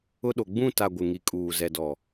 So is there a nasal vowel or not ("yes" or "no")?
yes